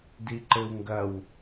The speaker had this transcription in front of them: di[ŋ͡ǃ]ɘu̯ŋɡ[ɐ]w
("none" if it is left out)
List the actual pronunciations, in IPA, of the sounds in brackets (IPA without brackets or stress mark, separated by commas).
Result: ǃ, ɐ